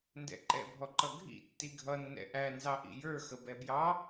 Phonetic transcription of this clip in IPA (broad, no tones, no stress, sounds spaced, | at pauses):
n d ɛ̰ ǃ ɛ̰ bʱ ɔ ǃ ʌ ɡʱ ḭ tː i ɡʱ ʌ nː ɛ̰ ʔ æ n z ɑ ʔ ḭ j ə˞ x ə b ɛ b j ɑ